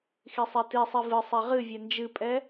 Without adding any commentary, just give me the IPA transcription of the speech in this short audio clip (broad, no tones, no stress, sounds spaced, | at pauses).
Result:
x i sˤ ɛ t i sˤ i v ɨ sˤ ɛ ʁ ɨ vʲ ɛ n d͡ʒ ɨ pʼ ɛ